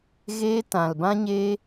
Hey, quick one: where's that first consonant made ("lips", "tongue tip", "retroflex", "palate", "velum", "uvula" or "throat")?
velum